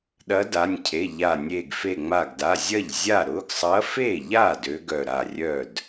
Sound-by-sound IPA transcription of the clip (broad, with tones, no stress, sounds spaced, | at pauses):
ɗ ɐ˧˥ d a˩˧˩ nʲ cʰ e˩˧˩ ʎ a˧˩ nʲ e˧˩ ɡ f e˧˩ ŋ͡m a˧˩ ɡ d a˩˧˩ zʲ ɐ˥˩ ʎ zʲ a˥˩ ɾ ʊ˩˧˩ ɡ sˤ ɐ˧˥ f e˥˩ ʎ a˥˩ d ø˧˥ ɡ œ˧˩ ɾ a˧˩ rʲ œ˥˩ d